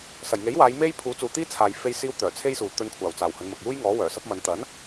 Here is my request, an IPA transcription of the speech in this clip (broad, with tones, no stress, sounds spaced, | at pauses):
s ɐ˨˩ j ŋ e˨˥ j w aː˨˧ j m e˥ j pʰ uː˨˥ t͡s uː˨ t̪ iː˥ t͡sʰ aː˨ j f e˧ j s iː˧ w t̪ œː˨˩ t͡sʰ e˥ j s uː˨˧ t̪ ɵ˧ n kʷʰ aː˨˩ w t͡s aː˨˩ w h ɵ˨˧ n m ɐ˨ k̚ j uː˥ j ŋ ɔː˨˥ w œː˨˩ s ɐ˥ p̚ m ɐ˨˧ n t̪ ɐ˨˥ n